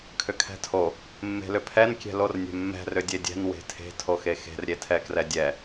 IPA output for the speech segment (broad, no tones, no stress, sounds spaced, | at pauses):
kʰ ʏ kʰ ɛ̤ tʰ o | mː e̤ l ʏ pʰ ɛ n kʲ ɛ̤ l o r nʲ ɛ̤ mː ɛ̤ r ʏ dʲ e dʲ ɛ̤ n w e̤ tʰ e̤ tʰ o x e x e̤ r ɾʲ e tʰ ɛ k r ɛ dʲ ɛ